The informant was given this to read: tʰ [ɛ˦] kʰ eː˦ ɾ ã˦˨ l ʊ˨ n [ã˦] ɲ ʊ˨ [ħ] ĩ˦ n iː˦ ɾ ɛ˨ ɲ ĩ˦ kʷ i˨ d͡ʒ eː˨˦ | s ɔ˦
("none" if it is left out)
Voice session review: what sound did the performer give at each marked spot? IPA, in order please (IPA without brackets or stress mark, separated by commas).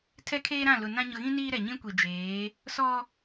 ɛ˦, ã˦, ɣ